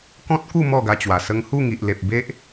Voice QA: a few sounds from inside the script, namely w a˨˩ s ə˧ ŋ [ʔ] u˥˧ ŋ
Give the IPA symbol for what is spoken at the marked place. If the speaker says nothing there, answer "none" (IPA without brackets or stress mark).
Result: h